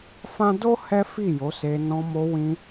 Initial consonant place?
labial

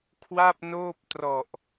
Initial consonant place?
velar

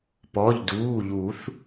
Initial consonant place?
labial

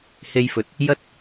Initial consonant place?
glottal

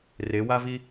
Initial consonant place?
alveolar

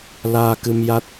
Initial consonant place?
alveolar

